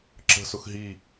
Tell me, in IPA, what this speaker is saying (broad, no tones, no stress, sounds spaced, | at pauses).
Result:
ǁ ə̤ s ʊ x ɦ i